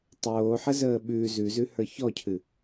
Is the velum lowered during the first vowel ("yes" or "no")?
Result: no